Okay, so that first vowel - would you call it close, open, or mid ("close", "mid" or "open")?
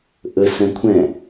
mid